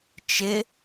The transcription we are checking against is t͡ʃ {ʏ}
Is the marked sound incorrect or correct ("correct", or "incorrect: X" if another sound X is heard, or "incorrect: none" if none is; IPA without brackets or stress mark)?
incorrect: ɪ